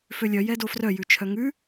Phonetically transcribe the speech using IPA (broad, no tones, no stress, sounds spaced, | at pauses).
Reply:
f ø lʲ œ j ɛ d o f r œ j ʉ t͡ʃʰ œ ŋ ʉ